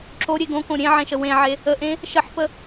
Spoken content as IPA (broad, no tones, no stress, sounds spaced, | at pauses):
ǁ o ɾʲ e ɡ õ k õ ɾʲ ẽ ʕ ẽ ʃ ə w ẽ ʕ e | ə ʔ ẽ | ʃ ə ħ p ə